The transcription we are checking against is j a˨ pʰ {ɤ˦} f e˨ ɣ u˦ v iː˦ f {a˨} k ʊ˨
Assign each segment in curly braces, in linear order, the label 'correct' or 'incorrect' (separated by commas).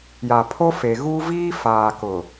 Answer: incorrect, incorrect